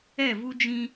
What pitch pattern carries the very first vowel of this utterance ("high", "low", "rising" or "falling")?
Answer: falling